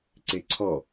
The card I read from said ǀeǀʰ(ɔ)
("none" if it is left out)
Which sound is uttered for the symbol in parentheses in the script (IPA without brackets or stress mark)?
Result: ɔ